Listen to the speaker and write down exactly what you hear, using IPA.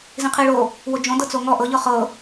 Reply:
z ĩ qʰ i ɭ o | w o d͡ʒ õ d ɤ t͡s o ŋ ɔ ʔ ɤ ʎ ɤ χ ɤ

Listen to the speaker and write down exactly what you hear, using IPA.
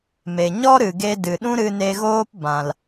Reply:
m e˨ ɲ ɔ˦ ɾ ɨ˨ ɡ e˧ d ɨ˨ ɗ ũ˦ ɾ ɨ˧ n e˧ ɣ oː˦ p b ã˨ l

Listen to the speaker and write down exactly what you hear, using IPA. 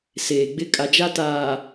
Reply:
s eː˨ ɡ͡b ɪ˦ kʼ a˨ d͡ʒ a˦ t aː˨

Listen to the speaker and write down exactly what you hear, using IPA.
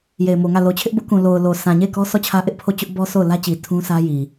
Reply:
j e˨ ɪ̯ m o˨ ŋ ä˦˨ l o˨ t͡ɕʰ ɪ˦ ʔ b ʊ˦ ʔ k ũ˨ l o˨ ʊ̯ l o˨ sʰ ã˨ ɲ e˦˨ ɪ̯ k ɔ˦ sʰ ɔ˦˨ t͡ɕʰ ä˦ ʔ ɪ˦ ʔ pʰ o˦˨ t͡ɕ ʊ˦ ʔ b ɔ˦ s o˦˨ ʊ̯ l ä˦ t͡ɕ i˨ tʰ ũ˦ s ä˦ j i˨

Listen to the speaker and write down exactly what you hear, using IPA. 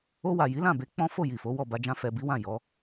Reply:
o˧ w a˨ j i˨˦ l ã˦˨ b e˨˦ k͡p ɔ̃˦ f o˦˨ j i˨ f o˨˦ w ɔ˦˨ b a˧ d͡ʒ ã˧ f ɛ˨ b i˨˦ w ã˦˨ j ɔ˨˦

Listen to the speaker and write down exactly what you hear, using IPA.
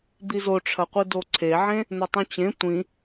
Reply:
d̪ i z o ʈ͡ʂʰ ɐ qʷ ɨ d o ǀʰ e ʕ ẽ | n̪ ɵ tˤ ũ t͡ɕ ẽ tʷ ĩ

